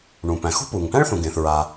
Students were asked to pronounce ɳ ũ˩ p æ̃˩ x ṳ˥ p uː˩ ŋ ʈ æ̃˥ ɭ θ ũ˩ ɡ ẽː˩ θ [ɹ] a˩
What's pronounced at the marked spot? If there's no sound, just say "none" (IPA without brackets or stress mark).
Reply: ɹ